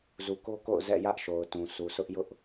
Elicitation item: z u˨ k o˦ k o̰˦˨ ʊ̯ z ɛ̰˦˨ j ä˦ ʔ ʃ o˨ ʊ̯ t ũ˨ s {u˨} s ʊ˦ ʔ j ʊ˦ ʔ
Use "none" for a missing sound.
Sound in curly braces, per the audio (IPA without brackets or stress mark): u˨